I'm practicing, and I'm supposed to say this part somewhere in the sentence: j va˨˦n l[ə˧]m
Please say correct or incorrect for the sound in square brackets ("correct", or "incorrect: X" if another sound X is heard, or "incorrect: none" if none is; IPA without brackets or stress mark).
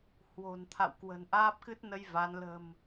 incorrect: ə̤˨˩